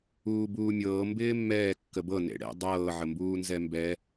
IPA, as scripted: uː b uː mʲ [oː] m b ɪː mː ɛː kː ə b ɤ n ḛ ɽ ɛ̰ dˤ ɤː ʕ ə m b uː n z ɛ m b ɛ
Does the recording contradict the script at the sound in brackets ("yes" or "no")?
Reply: yes